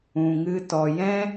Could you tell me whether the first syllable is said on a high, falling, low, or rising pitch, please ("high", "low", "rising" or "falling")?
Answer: low